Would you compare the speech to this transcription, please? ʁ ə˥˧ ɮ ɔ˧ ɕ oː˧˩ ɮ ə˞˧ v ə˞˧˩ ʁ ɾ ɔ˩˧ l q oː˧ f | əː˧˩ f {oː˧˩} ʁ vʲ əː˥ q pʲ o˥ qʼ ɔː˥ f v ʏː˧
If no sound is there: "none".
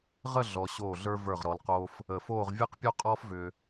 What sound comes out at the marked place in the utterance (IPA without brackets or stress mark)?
oː˥˧